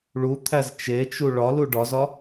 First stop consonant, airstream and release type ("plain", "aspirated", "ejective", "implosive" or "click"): aspirated